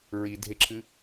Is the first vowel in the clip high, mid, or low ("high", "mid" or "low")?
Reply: high